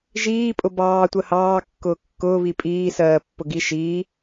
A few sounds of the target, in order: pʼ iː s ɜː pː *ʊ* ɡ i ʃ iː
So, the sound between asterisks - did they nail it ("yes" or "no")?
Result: yes